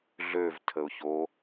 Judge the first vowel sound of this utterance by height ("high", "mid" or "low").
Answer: mid